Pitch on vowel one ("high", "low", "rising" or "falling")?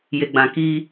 low